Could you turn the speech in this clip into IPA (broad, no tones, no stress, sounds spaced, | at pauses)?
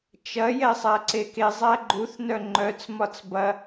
t͡ʃ ɐ j ɛ sˤ æ ǀ e k e zˤ æ ɡ͡ǃ u θ n œ ŋ͡ǃ œ t͡s m ɒ t͡s b ɐ